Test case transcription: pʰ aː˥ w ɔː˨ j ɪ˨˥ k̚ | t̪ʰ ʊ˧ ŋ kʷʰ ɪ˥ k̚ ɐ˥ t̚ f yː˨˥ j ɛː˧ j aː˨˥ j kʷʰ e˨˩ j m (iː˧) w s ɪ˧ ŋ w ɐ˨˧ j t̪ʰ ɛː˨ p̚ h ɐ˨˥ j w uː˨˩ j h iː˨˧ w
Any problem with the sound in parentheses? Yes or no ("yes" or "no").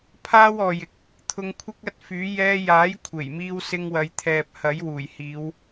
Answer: no